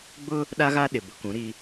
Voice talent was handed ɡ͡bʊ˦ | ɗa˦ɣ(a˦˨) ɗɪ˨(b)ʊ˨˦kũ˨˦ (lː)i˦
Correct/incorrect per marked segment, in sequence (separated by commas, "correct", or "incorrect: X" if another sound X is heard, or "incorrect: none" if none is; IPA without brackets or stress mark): incorrect: a˦, correct, incorrect: ɾ